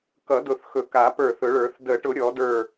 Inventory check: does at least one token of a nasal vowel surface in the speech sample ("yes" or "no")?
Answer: no